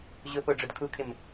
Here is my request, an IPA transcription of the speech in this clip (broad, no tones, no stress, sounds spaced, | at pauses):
ʑ ʊ p o ɖ͡ʐ ʊ d kʰ u kʰ ɪ m